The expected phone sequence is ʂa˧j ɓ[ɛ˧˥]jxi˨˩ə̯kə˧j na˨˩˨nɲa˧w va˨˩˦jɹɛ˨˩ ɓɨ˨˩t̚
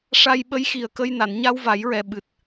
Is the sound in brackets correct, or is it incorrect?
incorrect